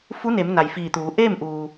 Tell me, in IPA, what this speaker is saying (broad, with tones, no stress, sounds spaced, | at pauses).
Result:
f u˧˥ n e˩˧ m n a˩ j f iː˧˩ t̪ uː˩˧ ʔ eː˥˨ m ʔ uː˩